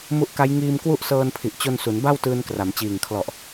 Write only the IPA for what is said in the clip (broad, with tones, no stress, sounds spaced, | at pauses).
m u˦˥ ʔ k a˦˥ j ŋ iː˧ m k w u˦˥ ʔ s ɤː˧ n pʰ i˨˩ ʔ t͡ɕ o˧ n s u˩˦ n b a˥˩ w t ɯː˧ n k r a˩˦ m t͡ɕ iː˨˩ ŋ kʰ l ɔ˨˩ ʔ